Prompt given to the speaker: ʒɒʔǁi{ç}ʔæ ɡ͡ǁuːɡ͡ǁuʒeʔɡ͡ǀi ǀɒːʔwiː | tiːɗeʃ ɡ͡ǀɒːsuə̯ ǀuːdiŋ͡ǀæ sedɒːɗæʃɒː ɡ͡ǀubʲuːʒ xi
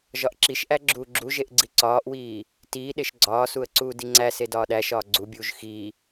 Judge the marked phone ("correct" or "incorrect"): incorrect